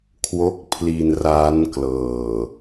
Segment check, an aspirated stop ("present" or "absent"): present